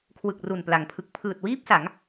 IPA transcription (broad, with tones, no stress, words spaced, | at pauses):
kʰwɯ˨˩k̚ru˨˩npla˩˦ŋpʰɯ˨˩k̚ pʰɯː˨˩t̚wiː˥˩p̚sa˩˦ŋ